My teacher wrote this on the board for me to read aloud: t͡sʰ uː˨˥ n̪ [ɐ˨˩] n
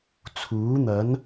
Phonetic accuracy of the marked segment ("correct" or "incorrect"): incorrect